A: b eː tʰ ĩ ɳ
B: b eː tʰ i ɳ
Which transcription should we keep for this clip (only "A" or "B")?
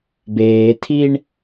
B